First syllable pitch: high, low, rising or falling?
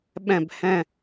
falling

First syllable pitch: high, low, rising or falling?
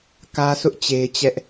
high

